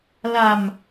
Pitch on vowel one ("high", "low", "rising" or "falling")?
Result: low